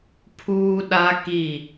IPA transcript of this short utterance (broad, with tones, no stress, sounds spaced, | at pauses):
pʰ uː˦ ɗ a˦ k i˦˨